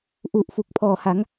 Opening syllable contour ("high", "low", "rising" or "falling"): low